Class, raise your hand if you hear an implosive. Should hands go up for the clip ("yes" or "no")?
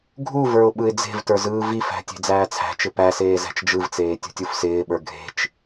yes